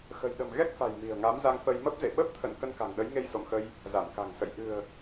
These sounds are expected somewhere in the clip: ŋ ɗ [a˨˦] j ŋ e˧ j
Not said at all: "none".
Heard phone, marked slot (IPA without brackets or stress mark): ə˨˦